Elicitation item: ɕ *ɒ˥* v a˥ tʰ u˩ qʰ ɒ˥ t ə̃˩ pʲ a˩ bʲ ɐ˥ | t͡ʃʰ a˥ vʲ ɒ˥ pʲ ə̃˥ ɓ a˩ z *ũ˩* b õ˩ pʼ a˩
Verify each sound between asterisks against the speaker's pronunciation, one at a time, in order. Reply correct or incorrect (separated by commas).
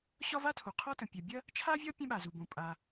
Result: correct, incorrect